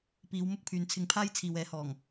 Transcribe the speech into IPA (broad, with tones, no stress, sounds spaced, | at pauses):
p iː˨˧ w m ʊ˥ k̚ pʰ yː˨ n t͡sʰ ɪ˧ ŋ pʰ aː˥ j t͡sʰ iː˨ w ɛː˨˥ h ɔː˨˩ ŋ